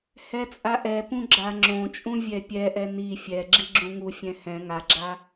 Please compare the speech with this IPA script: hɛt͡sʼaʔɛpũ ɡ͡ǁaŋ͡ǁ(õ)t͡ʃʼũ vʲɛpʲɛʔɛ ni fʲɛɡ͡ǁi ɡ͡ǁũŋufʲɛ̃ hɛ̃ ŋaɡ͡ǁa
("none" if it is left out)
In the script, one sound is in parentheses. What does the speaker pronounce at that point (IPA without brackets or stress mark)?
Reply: õ